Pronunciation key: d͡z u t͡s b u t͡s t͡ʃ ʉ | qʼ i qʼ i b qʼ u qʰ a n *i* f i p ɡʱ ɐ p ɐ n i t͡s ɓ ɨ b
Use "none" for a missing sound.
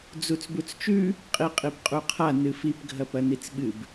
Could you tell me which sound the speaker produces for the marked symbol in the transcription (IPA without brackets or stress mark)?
ɨ